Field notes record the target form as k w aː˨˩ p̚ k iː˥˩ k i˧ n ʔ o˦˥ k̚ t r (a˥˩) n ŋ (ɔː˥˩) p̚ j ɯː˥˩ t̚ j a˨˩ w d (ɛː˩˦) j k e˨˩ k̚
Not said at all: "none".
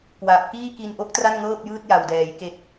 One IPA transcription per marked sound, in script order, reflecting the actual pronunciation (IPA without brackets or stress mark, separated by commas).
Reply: a˥˩, ɤː˥˩, ɛː˩˦